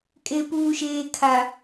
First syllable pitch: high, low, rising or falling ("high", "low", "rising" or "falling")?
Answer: low